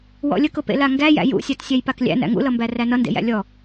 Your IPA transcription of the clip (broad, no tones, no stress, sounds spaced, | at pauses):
w ɔ̰ lʲ ə k ʊ p ḛ l a ŋ ɡ æ j æ̰ j ṵ sʲ a t sʲ æ j p a k lʲ æ̰ n æ̰ ŋ ṵ l ʌ m b æ r æ n ʌ n d ḛ j æ̰ lʲ ɔ